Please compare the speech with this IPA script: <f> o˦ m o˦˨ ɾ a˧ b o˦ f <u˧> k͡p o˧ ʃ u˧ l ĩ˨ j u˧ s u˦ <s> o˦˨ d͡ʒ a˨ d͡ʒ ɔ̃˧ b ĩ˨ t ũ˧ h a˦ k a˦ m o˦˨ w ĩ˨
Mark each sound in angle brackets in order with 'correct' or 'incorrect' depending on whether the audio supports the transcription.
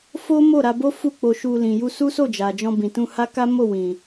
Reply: correct, incorrect: u˦˨, correct

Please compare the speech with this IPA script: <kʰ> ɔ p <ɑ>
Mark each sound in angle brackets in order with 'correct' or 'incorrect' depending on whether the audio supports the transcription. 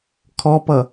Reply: correct, incorrect: ʌ

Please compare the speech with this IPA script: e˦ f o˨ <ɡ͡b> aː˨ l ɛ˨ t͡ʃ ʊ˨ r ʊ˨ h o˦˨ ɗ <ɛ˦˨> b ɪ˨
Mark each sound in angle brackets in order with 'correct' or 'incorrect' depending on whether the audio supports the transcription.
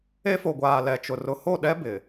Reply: incorrect: ɡʷ, incorrect: ɛ˦

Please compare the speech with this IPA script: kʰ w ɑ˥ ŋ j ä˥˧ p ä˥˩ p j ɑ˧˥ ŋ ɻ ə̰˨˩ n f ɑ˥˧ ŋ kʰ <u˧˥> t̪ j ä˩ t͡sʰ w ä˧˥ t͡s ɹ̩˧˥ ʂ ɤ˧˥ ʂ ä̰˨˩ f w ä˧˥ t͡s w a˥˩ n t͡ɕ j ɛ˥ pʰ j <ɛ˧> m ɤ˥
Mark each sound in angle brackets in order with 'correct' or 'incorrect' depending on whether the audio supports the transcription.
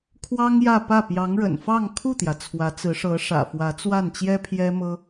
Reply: incorrect: u˥˩, incorrect: ɛ˥

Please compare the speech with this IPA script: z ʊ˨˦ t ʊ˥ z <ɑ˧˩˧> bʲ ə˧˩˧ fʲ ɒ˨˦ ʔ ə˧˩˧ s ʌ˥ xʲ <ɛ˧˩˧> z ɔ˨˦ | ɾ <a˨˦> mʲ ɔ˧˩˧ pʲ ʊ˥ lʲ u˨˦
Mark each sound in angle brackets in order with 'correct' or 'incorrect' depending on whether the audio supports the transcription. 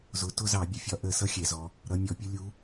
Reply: correct, correct, incorrect: ʌ˨˦

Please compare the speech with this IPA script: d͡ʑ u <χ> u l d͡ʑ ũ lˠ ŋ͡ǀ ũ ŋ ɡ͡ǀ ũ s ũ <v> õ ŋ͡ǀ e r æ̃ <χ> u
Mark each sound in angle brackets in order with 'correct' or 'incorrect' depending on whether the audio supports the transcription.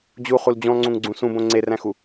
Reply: correct, incorrect: b, incorrect: x

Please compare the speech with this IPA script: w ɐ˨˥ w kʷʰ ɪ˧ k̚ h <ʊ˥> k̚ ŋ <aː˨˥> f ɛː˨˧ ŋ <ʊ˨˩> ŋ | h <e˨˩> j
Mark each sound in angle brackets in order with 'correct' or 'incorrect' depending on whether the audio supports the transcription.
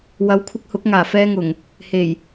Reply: incorrect: ʊ˨˥, incorrect: aː˨˩, correct, correct

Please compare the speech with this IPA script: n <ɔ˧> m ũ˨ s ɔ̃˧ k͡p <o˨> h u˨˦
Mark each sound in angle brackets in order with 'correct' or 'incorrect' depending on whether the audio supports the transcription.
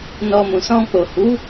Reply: correct, correct

